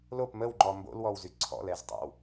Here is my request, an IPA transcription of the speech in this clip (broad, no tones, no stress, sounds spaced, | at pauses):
l o p m ə w ŋ͡ǃ ɔ m b o̰ l w ɔ w z y ǀʰ ɔ̰ l ɛ z tˤ ɛ̰ w